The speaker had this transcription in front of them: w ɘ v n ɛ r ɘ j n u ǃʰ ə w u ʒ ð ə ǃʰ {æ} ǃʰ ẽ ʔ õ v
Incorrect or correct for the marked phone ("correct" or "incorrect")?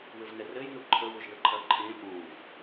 incorrect